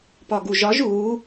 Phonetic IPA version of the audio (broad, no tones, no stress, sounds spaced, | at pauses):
p ɒ ɡ u ʒ ɒ ʒ u